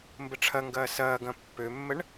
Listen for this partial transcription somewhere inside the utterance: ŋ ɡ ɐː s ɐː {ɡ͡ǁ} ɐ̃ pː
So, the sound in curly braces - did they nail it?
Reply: no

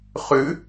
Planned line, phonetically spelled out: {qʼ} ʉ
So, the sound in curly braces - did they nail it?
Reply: no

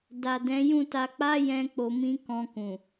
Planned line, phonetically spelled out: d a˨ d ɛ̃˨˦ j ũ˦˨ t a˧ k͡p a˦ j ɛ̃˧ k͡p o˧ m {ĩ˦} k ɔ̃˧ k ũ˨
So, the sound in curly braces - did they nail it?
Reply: yes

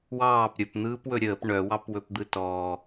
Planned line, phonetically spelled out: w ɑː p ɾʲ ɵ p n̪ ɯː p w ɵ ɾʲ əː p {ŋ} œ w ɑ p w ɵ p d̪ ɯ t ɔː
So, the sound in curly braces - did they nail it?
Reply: no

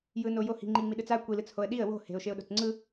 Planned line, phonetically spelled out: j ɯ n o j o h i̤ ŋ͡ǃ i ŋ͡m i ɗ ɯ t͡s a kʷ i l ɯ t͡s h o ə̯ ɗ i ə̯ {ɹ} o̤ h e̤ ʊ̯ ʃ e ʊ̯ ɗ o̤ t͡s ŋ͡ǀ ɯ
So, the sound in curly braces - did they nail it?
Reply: no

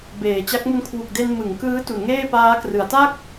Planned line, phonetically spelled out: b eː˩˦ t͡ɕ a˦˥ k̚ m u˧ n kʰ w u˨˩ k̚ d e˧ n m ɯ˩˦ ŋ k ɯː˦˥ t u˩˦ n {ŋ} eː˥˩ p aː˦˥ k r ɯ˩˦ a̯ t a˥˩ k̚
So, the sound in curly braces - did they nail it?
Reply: yes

